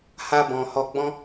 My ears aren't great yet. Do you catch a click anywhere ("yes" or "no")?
no